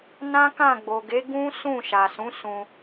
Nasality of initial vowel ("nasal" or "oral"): nasal